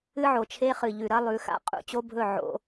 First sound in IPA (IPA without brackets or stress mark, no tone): ɨ